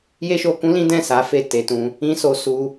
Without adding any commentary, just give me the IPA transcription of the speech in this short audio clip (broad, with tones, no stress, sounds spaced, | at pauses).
j e˦ ʃ o˧ k ũ˦ l ĩ˦ d ɛ̃˦˨ s a˨˦ f e˦˨ t e˨ t ũ˧ | ĩ˦ s o˧ s u˧